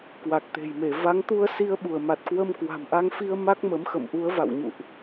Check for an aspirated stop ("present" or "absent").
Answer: absent